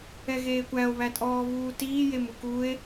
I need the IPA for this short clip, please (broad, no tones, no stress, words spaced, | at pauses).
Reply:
ɛɣeːkʷæo̯ βætʼɔːβuːtiː jemukue̯